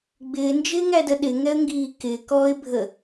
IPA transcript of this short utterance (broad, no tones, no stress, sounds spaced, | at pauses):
ɡ͡b ɪː n d͡ʒ ɪː ŋ æ d ə ɗ ɪ ŋ ɛ ə̯ ŋ ɡ iː k ɪː k ɔː ɪ̯ bʱ ə